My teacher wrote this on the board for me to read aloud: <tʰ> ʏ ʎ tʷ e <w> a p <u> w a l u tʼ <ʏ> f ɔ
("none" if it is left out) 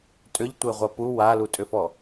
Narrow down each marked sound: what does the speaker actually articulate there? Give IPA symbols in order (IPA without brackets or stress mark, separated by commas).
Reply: tʼ, ʁʷ, u, ʏ